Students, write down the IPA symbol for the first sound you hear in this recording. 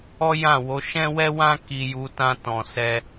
ɔ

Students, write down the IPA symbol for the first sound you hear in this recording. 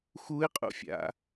x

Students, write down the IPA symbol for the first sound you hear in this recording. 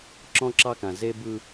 ǁ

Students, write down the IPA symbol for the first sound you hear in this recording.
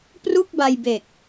p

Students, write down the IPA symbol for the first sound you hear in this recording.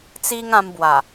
t͡s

